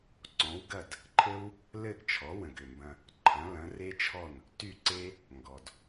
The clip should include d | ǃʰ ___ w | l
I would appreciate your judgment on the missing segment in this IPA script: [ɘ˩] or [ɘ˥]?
ɘ˥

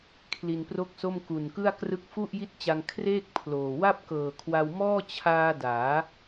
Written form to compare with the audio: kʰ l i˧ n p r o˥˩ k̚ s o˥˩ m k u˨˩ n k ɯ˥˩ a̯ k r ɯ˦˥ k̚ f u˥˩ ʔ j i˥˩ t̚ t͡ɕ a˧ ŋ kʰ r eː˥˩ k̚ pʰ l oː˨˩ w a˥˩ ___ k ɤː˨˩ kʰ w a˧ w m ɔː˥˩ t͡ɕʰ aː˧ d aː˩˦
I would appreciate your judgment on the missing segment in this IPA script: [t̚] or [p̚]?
p̚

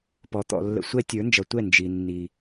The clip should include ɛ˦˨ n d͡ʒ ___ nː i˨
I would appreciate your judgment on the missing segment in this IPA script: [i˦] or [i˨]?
i˨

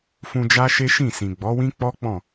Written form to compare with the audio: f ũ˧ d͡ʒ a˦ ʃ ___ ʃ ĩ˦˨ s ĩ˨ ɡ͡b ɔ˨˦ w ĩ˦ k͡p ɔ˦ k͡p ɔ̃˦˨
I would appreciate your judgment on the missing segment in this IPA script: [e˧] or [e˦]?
e˦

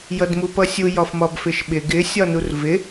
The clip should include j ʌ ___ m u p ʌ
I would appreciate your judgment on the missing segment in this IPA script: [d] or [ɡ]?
d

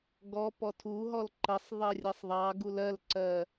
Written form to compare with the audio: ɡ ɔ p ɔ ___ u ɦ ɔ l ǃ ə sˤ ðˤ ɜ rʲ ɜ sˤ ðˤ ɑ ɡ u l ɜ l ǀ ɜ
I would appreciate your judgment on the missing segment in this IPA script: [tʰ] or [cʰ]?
tʰ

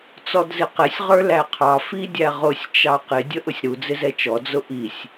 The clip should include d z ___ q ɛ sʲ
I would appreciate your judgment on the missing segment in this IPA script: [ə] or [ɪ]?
ɪ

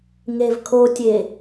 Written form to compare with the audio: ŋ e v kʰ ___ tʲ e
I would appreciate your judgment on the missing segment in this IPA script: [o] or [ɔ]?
o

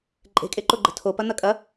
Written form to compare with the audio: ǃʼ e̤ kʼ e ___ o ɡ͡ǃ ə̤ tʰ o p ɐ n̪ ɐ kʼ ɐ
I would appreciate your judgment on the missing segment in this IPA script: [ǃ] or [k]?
ǃ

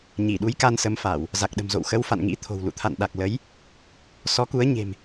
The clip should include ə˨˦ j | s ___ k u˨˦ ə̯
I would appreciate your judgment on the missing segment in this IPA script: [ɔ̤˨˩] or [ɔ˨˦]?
ɔ˨˦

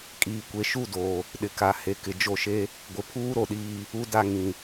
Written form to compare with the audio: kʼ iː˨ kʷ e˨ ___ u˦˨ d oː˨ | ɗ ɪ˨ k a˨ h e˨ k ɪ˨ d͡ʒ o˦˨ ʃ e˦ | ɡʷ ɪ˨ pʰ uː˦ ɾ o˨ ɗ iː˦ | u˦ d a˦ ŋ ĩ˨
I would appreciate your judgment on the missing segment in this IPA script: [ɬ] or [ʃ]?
ʃ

